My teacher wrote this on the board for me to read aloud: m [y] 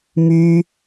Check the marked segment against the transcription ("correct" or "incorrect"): correct